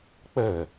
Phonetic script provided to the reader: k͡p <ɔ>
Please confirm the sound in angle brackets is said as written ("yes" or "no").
no